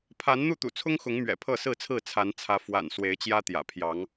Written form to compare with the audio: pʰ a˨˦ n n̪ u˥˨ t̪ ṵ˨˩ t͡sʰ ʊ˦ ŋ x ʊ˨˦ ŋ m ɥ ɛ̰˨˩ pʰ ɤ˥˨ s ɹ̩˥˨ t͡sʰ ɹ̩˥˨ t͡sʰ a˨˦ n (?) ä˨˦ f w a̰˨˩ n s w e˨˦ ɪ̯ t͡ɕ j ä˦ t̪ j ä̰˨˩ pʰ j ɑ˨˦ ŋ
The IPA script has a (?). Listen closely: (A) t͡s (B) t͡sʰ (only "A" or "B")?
B